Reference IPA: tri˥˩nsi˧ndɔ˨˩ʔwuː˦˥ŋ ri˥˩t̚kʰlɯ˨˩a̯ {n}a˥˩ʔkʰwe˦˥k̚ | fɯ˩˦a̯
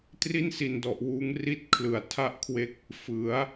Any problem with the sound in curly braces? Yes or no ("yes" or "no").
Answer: yes